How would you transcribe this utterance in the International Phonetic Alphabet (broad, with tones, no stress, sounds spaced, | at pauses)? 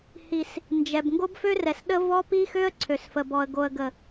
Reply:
h i˨ s | n d͡ʒ ɛ˨ b ŋ ɡ o˦ b f ø˦ r ɛ˨ s ɗ ə˦ v ɔ˦ p i˦ x ø˦ ə̯ ǀʰ ø˨ s f ə˨ b ɔ˨ ə̯ ɡ o˨ ə̯ ɡ ə˨